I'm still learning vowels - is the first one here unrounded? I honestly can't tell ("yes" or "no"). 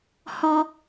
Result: no